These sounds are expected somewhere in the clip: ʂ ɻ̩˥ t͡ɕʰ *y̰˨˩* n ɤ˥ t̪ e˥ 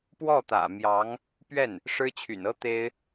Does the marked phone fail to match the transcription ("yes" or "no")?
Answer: no